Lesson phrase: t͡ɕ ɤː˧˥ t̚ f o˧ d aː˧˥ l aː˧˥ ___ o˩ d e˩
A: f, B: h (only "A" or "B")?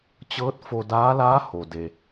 B